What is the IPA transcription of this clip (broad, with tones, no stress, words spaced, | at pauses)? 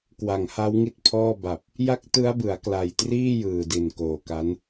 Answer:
kwa˨˩ŋha˦˥wŋi˦˥t̚pʰɔː˥˩ ba˨˩p̚ | ja˦˥k̚ tɯ˦˥a̯bɯ˩˦a̯kla˨˩jtriː˥˩ jɯː˨˩di˨˩n koː˨˩ka˦˥n